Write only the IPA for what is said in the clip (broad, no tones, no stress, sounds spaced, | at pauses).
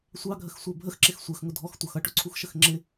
sʷ ɑ ɡʱ ə x sʷ ɜ bʱ ə x ǁ ɪ x sʷ ɜ x ŋ ʊ dʱ ɔ x tʷ ɑ x ʌ ʈ ʊ ǀʰ u x ʃ ə x ŋ͡ǁ ɪ